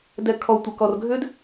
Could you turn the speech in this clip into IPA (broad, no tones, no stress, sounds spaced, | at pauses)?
d ɛ kʰ ɔ tʷ ə k ɔ r ɡʱ ʏ d